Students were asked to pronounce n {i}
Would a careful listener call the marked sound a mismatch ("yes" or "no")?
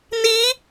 no